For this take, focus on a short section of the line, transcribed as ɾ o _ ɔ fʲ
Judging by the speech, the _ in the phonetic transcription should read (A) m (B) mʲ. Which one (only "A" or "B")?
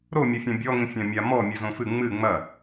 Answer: B